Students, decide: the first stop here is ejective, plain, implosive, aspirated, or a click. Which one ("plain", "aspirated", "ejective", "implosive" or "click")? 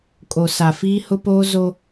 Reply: ejective